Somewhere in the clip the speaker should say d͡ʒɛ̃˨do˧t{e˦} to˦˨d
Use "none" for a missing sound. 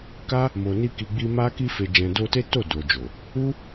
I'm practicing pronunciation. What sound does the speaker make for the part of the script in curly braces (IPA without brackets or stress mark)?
e˦